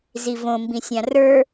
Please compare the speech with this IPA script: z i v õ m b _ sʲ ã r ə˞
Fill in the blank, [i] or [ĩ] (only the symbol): ĩ